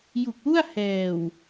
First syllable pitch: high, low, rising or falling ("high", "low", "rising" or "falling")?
low